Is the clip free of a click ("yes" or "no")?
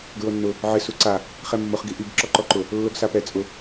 no